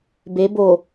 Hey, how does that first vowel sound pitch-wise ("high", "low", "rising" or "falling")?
rising